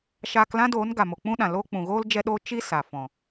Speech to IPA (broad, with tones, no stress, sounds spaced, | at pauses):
ʃ aː˧ k l ã˦ d oː˨˦ n ɡ a˨ m o˨ k͡p ũ˦ ɗ ã˨ l o˧ k͡p ũ˨ ɣ oː˦ l d͡ʒ ɛ˦ ɗ oː˦ t͡ʃ i˦ s a˨ f ɔ̃˨